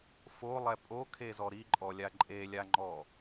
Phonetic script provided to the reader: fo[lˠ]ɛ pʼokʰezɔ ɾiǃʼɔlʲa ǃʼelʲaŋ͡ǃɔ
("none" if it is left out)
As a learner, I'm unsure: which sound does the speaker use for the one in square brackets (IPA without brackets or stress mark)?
lˠ